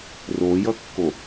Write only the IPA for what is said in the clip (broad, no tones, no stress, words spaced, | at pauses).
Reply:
rojʌkːo